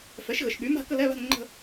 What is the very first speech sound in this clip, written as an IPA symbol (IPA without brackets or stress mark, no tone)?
f